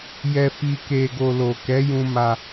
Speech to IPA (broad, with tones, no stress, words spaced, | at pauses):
jɛ˧fi˧ke˧ɡo˧ lo˨kɛ˨˦jũ˧ ma˧